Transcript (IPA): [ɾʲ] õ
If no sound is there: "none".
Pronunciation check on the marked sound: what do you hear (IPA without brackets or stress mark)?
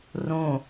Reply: r